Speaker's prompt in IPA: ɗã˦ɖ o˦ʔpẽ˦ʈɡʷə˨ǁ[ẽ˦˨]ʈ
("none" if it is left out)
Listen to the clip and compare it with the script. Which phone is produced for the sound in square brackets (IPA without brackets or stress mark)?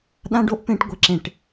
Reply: ẽ˦˨